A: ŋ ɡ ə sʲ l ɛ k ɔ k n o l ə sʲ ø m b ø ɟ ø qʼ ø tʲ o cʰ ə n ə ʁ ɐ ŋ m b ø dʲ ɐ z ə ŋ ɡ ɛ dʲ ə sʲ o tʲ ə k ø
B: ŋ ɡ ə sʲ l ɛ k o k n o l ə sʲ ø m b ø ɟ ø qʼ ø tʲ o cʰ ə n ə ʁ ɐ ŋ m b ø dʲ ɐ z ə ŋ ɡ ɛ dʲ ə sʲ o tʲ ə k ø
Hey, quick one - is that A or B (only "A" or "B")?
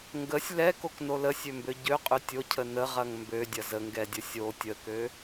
B